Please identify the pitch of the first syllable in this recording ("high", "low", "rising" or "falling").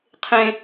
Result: high